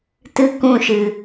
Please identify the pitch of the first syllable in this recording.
high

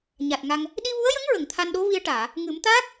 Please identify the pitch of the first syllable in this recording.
low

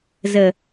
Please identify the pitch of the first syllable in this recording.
low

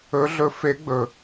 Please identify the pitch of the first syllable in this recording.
rising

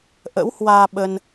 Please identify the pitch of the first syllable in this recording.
rising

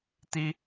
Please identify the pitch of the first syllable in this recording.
high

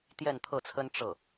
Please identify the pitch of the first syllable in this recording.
falling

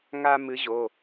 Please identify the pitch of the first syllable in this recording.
high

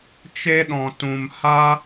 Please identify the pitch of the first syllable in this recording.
high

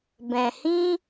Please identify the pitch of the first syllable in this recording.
low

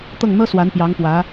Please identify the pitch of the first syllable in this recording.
falling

